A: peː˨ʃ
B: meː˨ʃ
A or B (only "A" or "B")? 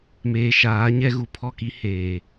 B